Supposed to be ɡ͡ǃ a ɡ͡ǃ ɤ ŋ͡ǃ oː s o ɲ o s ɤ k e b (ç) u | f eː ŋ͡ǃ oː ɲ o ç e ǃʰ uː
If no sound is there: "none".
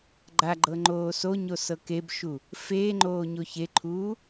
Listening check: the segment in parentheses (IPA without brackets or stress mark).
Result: ʃ